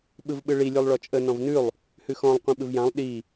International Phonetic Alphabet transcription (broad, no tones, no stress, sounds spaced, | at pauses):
ɓ ɯ v ɓ ɯ ɭ i lʲ ʉ lˠ ɭ ɔ t͡ʃʼ ə n ɔ̃ v n ʉ lˠ | h ʉ x ɔ̃ lˠ qʷ ĩ ɓ ɯ v j ã lˠ ɗ i